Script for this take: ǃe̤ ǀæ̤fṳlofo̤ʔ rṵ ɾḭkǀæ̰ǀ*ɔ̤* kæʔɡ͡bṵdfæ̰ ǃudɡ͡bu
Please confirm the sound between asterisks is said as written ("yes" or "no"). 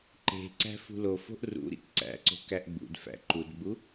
no